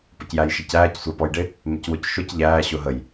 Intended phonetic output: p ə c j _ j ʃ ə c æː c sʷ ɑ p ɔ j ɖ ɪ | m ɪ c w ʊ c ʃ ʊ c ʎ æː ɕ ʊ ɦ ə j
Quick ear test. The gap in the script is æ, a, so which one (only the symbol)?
æ